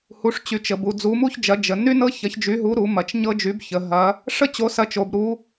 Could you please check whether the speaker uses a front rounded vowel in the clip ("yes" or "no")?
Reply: yes